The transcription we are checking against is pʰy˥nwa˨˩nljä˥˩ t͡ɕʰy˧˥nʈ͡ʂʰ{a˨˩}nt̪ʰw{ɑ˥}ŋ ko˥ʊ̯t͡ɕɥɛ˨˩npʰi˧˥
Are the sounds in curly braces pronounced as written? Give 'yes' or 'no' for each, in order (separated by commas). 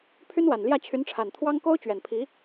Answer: yes, yes